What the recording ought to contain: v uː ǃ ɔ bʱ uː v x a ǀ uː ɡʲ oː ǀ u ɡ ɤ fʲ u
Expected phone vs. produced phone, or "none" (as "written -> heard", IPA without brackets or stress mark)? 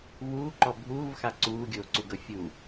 none